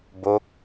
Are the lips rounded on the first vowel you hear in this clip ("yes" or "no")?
yes